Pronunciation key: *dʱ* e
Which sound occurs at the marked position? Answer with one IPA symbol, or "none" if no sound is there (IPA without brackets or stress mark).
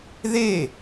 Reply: ð